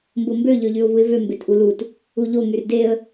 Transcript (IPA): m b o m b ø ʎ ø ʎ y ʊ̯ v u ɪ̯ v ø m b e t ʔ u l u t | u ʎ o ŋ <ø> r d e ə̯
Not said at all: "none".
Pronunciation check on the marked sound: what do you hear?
y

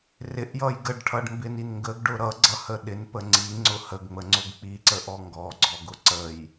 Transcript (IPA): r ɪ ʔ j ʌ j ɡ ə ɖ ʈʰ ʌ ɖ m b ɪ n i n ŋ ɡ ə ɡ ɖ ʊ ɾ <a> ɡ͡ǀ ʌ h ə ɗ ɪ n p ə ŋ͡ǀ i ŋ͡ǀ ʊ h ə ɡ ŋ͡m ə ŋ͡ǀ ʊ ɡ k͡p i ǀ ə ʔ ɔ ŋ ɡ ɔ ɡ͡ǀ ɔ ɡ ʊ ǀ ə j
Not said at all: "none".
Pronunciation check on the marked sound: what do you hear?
ʌ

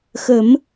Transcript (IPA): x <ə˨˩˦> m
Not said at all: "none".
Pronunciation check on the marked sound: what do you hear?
ə˨˩˦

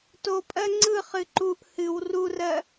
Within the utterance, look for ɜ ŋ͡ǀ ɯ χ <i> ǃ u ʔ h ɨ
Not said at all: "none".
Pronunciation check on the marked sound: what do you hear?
ɨ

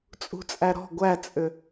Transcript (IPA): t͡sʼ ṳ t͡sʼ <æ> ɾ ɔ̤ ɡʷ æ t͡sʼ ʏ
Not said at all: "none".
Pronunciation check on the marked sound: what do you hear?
æ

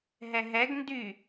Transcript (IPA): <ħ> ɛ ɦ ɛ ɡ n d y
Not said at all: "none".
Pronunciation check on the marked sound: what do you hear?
ɦ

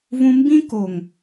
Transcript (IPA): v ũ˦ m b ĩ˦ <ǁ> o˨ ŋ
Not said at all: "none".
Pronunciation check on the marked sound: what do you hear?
k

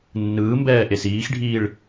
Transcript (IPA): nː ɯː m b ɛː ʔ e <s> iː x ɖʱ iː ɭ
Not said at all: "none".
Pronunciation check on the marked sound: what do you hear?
s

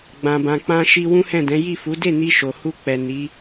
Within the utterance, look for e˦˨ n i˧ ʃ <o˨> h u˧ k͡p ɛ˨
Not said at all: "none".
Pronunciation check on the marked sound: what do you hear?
o˨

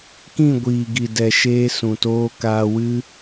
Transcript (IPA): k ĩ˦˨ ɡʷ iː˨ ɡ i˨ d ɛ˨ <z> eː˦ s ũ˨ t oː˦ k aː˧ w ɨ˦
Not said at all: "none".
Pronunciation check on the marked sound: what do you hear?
ʃ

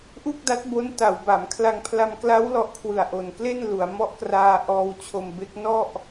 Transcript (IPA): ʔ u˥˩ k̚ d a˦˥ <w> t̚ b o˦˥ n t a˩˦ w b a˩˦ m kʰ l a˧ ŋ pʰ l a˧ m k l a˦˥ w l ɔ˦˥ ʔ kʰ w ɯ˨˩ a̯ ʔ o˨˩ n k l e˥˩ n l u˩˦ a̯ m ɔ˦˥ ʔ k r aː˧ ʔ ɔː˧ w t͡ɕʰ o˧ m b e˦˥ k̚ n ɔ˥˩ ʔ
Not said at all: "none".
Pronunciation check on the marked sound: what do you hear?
none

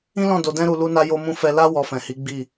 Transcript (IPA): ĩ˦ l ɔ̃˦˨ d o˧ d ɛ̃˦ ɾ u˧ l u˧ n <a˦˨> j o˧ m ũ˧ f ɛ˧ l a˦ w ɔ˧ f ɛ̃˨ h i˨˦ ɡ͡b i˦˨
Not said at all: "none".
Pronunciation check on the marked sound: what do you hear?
a˧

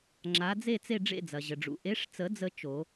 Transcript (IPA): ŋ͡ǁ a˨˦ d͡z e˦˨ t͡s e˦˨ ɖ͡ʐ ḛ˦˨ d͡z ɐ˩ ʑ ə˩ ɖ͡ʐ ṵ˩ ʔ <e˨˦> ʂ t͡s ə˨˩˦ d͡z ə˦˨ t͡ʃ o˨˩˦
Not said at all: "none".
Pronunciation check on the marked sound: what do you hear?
e˨˦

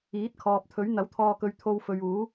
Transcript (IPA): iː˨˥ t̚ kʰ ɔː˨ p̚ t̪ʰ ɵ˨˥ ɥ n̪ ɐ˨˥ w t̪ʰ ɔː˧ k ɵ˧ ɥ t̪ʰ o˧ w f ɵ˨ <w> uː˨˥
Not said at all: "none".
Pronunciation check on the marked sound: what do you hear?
ɥ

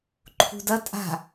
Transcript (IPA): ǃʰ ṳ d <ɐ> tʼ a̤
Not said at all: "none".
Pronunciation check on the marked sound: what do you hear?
ɐ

